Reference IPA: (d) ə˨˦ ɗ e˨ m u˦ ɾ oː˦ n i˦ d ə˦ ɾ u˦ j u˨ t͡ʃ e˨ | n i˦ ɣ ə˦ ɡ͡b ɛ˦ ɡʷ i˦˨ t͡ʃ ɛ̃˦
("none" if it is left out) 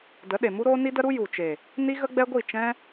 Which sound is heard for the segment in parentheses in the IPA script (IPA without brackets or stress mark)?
d